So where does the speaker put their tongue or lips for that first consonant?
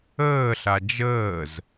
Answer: tongue tip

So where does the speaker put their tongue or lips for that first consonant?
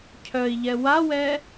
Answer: palate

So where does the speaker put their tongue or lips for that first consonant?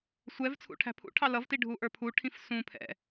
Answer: tongue tip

